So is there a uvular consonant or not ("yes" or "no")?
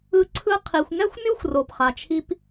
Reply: yes